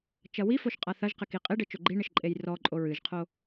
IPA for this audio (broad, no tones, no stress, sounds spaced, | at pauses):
t͡ʃ ɐ w i f o ʃ qʼ a θ ɐ ʒ q ɘ k i qʼ e ɖ ɘ t͡ʃ o ɡ͡ǃ i ɳ ɘ ʃ ǃʼ e j r ɔ ǃʼ o ɹ ɨ ʒ qʰ o